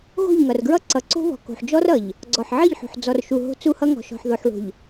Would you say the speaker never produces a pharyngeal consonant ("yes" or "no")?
no